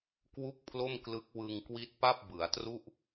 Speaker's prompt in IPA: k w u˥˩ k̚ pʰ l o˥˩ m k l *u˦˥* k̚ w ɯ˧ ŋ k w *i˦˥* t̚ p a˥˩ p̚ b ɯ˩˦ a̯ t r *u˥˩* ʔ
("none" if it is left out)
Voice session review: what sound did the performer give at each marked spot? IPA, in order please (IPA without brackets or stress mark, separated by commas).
ɯ˦˥, i˦˥, u˥˩